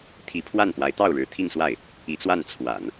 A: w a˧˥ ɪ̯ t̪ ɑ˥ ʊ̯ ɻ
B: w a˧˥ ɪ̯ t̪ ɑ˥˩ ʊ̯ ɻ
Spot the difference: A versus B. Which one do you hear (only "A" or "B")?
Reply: B